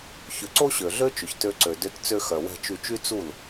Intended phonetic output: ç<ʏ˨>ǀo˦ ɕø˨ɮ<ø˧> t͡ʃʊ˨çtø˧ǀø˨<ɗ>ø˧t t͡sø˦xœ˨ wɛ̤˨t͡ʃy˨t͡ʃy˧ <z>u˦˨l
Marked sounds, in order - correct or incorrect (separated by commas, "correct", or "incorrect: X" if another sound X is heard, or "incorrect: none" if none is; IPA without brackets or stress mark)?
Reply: correct, incorrect: ø˦, incorrect: d, incorrect: t͡s